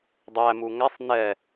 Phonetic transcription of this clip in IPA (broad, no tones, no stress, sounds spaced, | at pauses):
dˤ æ m u ŋ æ sˤ n ɛ